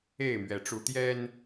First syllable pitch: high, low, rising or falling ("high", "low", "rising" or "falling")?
falling